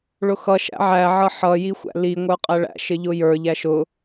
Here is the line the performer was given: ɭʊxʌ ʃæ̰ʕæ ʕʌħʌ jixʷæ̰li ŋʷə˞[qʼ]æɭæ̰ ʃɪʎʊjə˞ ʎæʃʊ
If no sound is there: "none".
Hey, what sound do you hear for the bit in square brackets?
qʼ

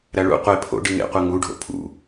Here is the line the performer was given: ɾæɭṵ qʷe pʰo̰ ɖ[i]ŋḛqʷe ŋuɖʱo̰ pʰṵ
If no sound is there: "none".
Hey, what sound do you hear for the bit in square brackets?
i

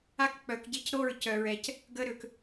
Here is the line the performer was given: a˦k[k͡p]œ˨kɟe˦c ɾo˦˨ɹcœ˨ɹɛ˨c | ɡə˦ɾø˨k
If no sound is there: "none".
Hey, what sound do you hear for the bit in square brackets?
k͡p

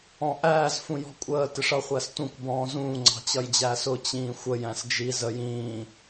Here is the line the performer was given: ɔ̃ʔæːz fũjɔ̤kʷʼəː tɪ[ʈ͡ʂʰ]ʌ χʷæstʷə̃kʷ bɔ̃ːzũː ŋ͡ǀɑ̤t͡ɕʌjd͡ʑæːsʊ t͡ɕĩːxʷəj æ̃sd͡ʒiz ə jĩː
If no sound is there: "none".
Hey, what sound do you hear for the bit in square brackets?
ʂ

